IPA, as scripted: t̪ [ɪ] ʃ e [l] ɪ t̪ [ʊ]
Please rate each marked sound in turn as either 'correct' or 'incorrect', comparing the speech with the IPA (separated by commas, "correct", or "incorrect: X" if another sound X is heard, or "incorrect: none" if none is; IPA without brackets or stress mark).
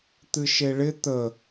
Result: incorrect: ɨ, incorrect: ɭ, incorrect: ə